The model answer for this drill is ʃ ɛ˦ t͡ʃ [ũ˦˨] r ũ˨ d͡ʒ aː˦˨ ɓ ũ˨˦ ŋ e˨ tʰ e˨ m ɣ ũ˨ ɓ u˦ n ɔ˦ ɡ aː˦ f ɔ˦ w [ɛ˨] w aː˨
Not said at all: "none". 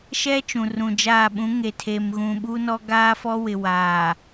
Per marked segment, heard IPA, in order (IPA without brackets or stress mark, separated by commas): ũ˨, ɪ˨